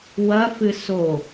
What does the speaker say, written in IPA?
wɐfɨ so

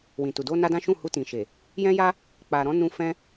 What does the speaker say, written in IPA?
wĩ˨tu˨ do˧na˧ dã˦ʃũ˦˨ hu˧tĩ˨ʃe˨ | jɛ̃˦ja˦ | k͡pa˨ɾɔ̃˨˦nũ˧ fɛ̃˦

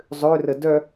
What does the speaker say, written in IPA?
zˤørə dœ

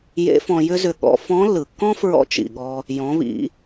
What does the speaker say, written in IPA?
jḛ˧˥fɔ̃˧ jʏ˥zʏ˧ ɠɔ̰˧ fɔ̃˧˥lːɯ˩kːɔ̃˥fɹɔ̰˧˥ t͡ʃḭ˩ɠɔ˧ | jɔ̃˩˧βḭ˩˧

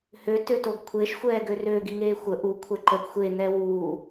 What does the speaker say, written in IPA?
hø tøtoɡkʷʰeʃ xʷɛːɡørø ɡiŋeːxʷə ʔu kʷʰɛǃəɡ xʷe n̪ɛwuː

